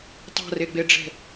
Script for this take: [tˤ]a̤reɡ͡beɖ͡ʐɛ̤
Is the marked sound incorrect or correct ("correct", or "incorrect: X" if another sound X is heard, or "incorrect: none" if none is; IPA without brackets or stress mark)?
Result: correct